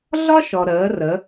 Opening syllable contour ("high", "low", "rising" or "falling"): high